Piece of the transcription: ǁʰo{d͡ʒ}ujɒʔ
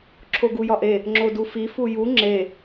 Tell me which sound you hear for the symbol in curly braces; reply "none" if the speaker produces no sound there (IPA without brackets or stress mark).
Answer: ɡ